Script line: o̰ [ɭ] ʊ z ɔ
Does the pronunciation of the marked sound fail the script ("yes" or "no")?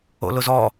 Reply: yes